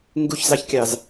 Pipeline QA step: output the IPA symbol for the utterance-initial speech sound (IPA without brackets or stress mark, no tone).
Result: ŋ